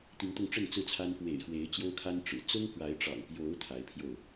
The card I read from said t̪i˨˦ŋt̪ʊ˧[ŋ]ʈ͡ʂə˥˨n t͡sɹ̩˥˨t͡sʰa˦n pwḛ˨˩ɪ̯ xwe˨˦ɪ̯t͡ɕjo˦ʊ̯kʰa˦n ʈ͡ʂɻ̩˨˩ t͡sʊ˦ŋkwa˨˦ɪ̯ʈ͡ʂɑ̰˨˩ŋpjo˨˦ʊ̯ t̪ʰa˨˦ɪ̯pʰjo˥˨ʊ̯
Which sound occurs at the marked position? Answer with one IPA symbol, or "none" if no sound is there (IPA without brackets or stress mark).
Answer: ŋ